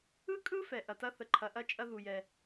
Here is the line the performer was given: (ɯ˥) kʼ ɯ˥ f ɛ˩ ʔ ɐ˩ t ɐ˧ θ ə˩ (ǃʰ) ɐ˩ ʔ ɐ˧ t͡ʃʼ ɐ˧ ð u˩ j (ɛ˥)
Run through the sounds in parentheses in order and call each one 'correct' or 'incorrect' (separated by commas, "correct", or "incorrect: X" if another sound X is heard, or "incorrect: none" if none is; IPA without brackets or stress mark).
correct, correct, incorrect: ɛ˩